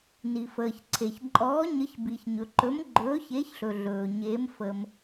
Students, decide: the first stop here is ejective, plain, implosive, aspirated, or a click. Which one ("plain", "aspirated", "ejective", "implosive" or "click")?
click